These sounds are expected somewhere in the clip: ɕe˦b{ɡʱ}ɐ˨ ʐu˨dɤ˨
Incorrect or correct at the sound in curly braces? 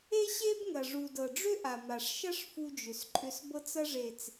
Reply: incorrect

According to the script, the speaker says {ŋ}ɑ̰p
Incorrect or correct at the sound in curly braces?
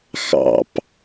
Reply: incorrect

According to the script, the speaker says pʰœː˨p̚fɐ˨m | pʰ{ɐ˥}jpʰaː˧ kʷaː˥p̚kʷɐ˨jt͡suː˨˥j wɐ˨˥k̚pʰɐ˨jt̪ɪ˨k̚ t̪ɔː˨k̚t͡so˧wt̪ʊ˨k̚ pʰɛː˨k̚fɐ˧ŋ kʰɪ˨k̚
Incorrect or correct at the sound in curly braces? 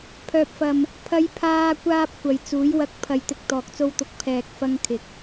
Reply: incorrect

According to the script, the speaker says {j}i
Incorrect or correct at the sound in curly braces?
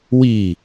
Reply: incorrect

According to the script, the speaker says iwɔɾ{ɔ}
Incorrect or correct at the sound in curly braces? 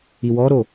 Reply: incorrect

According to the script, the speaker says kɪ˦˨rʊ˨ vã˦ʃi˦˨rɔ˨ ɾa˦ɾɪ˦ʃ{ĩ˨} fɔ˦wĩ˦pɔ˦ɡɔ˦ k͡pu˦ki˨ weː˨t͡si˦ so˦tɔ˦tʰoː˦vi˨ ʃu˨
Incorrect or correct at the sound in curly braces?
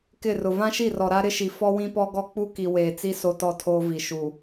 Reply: incorrect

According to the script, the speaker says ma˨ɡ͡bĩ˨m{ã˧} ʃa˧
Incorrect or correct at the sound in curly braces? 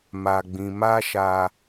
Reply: incorrect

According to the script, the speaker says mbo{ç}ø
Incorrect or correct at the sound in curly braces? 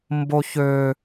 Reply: correct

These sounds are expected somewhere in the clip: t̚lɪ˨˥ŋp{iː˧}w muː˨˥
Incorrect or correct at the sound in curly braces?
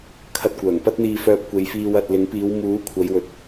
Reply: incorrect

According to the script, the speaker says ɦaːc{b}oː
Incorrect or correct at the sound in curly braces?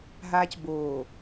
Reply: correct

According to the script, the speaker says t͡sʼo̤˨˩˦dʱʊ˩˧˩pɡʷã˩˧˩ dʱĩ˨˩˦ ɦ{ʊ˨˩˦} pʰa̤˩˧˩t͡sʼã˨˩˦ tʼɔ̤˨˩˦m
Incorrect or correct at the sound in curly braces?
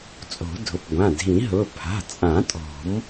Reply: incorrect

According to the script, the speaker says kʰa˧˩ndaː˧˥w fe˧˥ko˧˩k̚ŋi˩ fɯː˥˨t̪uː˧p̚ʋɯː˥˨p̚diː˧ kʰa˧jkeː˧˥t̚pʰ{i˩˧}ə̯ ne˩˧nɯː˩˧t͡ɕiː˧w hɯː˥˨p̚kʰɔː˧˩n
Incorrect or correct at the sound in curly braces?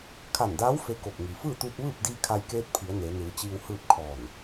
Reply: correct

